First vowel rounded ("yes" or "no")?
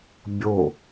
yes